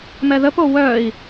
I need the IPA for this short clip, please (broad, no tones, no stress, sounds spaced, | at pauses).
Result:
m ɛ ð ə p o w œ i̯